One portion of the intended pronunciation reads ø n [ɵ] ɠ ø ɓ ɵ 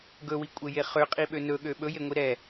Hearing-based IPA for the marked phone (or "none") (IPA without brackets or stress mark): ɵ